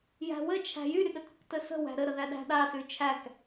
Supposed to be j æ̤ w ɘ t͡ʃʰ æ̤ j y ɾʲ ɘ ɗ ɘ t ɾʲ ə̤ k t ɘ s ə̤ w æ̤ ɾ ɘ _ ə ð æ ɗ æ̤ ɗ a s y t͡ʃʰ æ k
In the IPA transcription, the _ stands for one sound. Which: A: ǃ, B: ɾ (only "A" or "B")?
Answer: B